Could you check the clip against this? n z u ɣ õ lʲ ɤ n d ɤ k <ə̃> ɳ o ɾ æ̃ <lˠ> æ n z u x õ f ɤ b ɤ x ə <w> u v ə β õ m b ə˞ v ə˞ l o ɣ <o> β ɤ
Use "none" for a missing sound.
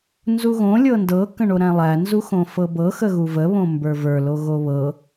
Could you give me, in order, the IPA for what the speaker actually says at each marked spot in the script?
ə̃, lˠ, ɣ, o

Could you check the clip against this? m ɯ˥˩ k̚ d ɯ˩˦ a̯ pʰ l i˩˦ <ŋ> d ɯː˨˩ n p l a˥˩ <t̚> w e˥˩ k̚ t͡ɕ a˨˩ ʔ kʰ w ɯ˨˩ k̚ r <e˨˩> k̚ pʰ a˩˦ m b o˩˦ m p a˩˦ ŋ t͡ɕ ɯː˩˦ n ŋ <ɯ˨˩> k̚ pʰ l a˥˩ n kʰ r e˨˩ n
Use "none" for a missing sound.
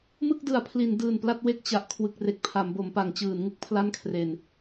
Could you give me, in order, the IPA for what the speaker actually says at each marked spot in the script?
n, t̚, e˨˩, ɯ˦˥

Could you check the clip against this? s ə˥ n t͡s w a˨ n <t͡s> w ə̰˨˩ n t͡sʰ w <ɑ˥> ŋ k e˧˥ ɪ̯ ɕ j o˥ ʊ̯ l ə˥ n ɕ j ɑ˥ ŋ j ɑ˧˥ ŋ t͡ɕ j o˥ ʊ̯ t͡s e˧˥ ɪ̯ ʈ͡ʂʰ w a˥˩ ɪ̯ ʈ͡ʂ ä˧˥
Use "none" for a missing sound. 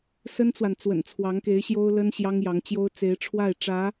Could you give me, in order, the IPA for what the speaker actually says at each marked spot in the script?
t͡s, ɑ˧˥

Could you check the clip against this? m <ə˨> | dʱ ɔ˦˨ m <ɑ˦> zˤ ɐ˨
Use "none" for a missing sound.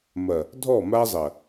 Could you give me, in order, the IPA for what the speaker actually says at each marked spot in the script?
ɐ˨, a˦

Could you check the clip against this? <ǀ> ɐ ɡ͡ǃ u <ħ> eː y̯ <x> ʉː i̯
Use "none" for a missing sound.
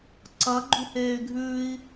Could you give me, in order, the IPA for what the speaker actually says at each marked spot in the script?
ǀ, h, ɡʱ

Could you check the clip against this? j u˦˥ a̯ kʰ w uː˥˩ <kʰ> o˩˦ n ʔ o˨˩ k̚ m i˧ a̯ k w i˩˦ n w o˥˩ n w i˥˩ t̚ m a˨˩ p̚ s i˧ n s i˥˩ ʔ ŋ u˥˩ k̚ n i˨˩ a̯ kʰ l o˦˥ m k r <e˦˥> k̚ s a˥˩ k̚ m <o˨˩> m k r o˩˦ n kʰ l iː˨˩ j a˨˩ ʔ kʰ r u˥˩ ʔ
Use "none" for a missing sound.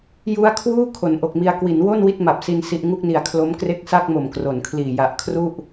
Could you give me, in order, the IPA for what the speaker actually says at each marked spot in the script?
kʰ, e˦˥, o˨˩

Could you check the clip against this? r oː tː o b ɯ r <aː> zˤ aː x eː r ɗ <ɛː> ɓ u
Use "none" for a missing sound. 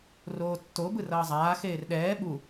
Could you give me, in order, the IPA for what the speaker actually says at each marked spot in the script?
ʌː, ɛː

